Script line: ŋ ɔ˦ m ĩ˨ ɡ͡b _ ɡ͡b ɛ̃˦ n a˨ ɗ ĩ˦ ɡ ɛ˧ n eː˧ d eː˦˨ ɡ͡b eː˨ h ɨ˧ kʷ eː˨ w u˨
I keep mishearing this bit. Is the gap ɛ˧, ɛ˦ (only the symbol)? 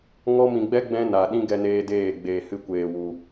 ɛ˦